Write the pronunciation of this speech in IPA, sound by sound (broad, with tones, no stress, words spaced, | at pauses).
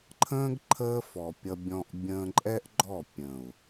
ǃʰə̃ː˦ɡ ǃʰəː˦fɔ˨pʲʌ˧bʲɔ̃˧ʔ bʲə̃ː˧ǃʼɛ˦ʔɡ͡ǃɔ˦˨ pʲə̃˨u̯